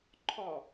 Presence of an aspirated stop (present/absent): present